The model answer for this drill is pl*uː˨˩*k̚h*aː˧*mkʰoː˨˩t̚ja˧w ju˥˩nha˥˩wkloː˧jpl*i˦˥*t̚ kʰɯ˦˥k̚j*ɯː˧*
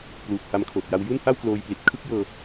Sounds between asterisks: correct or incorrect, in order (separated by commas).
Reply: correct, incorrect, incorrect, incorrect